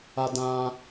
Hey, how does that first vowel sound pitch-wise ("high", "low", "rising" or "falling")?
high